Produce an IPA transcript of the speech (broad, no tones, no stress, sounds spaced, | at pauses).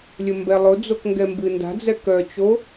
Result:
lʲ ə m b ɛ lˠ ʊ d͡z o k ŋ ɡ ɛ m b ɨ n d a̤ d͡z ɛ k œ t͡ʃ o